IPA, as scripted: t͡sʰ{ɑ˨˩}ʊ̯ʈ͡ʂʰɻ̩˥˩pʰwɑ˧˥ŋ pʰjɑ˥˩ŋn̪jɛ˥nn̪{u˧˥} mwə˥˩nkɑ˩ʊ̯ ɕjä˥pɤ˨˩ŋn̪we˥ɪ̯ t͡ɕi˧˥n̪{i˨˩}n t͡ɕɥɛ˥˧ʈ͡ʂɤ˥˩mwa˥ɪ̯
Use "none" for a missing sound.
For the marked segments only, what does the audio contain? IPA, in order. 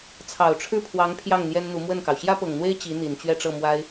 ɑ˨˩, u˧˥, i˨˩

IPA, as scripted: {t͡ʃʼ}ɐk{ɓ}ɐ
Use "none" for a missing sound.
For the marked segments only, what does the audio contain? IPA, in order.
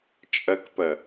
t͡ʃʼ, p

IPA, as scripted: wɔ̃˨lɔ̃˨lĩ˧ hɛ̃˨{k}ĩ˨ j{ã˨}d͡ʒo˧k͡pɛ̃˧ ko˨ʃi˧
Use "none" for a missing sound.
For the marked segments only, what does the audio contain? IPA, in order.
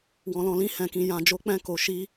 k, ã˨

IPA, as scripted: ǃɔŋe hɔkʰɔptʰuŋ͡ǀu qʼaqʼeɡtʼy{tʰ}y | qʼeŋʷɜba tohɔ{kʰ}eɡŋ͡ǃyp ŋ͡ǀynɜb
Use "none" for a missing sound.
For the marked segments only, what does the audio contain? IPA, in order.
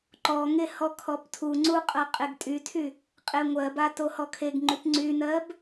tʰ, kʰ

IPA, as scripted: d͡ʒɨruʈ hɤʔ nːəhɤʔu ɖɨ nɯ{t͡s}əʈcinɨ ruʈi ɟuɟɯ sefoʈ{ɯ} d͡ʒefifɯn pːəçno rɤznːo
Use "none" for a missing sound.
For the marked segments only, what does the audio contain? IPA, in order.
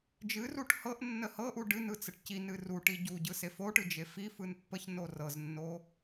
t͡s, ɯ

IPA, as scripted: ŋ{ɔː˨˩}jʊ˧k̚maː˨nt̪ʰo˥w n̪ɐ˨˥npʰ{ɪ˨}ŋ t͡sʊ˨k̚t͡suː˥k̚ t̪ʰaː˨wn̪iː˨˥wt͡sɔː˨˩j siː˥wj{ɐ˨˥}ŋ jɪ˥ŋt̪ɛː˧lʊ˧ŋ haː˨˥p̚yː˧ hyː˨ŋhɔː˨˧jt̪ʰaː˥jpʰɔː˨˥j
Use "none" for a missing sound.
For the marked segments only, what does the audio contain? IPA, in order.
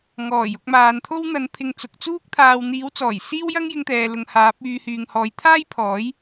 ɔː˨˩, ɪ˨, ɐ˥

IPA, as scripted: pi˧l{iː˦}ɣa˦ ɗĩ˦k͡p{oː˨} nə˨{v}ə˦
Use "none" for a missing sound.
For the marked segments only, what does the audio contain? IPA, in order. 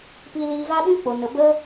iː˧, o˨, b

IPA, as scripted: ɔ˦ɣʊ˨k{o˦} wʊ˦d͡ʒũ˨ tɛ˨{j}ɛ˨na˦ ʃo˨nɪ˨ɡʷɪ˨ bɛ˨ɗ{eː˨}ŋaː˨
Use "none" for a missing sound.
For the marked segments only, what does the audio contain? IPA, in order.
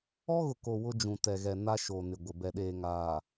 o˨, ɣ, eː˨

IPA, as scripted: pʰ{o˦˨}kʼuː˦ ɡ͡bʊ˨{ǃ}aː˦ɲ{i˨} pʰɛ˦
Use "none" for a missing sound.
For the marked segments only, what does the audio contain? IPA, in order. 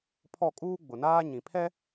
ɔ˦˨, n, ĩ˨

